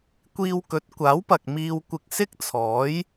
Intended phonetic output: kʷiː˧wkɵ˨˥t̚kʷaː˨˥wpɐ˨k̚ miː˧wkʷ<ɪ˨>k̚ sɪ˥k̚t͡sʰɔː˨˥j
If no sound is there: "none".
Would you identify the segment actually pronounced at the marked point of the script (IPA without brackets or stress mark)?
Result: ɪ˧